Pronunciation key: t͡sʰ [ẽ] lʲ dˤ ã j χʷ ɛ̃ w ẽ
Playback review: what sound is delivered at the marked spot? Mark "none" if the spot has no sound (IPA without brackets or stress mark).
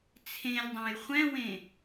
ẽ